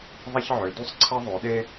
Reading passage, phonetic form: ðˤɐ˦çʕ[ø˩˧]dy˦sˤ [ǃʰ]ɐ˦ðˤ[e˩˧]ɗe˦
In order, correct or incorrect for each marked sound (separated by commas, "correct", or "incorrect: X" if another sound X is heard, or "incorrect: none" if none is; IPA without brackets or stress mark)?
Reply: correct, incorrect: ǀʰ, incorrect: ø˩˧